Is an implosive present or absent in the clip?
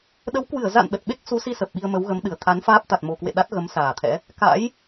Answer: present